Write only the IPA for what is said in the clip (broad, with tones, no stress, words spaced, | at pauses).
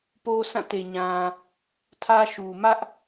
po˦sã˦˨ te˨ɲã˨ | tʰä˦ʃu˨ mä˦ʔ